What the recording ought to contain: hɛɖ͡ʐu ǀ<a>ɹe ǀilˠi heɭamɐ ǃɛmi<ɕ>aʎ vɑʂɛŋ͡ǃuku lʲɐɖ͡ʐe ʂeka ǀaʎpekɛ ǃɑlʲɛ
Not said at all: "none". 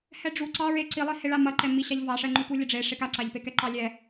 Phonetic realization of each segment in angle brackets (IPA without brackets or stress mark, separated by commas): ɑ, ɕ